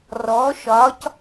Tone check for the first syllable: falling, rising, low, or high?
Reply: rising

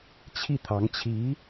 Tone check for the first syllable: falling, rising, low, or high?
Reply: falling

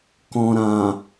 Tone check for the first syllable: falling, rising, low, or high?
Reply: low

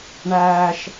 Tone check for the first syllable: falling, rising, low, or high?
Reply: high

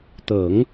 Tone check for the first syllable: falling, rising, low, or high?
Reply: low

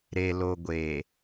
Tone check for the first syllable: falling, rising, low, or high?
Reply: low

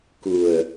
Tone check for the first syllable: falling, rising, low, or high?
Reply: low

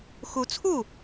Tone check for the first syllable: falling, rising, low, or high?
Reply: rising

